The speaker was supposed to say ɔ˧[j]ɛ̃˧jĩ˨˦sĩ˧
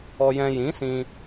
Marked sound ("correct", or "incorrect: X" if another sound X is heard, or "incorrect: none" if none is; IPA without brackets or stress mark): correct